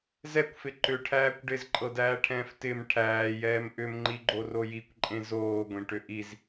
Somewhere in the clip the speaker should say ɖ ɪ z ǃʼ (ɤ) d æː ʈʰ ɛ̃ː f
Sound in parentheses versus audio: correct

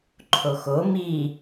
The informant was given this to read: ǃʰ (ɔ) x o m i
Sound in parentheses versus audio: incorrect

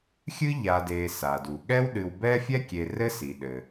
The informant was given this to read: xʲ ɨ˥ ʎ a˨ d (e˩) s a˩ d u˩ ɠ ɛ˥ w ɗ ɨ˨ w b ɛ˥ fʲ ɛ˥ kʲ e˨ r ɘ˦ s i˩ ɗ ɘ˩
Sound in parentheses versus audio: incorrect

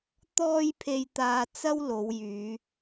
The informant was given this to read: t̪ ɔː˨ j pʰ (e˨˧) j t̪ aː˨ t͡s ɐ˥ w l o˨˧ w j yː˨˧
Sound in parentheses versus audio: incorrect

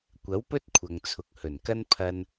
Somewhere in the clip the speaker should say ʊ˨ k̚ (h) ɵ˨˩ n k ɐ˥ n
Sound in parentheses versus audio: correct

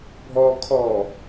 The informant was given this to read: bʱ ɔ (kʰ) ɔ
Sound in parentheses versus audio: correct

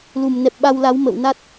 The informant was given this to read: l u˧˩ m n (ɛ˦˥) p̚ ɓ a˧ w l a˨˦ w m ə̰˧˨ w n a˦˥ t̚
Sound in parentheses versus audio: incorrect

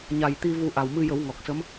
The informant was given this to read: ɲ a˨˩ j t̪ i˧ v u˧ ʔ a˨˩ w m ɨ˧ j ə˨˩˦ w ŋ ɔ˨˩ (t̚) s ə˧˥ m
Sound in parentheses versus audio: incorrect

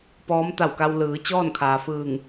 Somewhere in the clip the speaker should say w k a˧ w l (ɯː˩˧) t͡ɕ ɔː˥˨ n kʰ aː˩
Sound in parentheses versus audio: correct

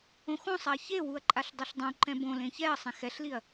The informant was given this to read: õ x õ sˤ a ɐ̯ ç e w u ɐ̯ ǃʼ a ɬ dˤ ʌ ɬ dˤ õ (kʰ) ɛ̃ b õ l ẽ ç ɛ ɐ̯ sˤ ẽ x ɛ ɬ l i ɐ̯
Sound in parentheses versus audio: incorrect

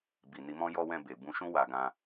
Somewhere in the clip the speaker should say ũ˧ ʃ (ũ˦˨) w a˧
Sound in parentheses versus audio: incorrect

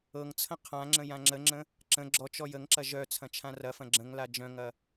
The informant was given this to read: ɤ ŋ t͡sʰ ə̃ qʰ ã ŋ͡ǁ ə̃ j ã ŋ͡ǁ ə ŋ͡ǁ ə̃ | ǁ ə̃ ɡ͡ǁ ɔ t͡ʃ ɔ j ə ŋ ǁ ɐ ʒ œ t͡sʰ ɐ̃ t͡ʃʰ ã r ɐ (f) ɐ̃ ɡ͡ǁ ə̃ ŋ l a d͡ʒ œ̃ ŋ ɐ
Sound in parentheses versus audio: correct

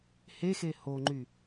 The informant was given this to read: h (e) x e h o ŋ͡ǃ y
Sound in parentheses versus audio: correct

